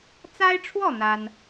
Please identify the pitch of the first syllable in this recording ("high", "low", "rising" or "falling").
high